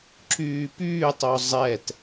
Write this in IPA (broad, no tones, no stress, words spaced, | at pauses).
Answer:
ǁyːpyːtˤo zˤɛt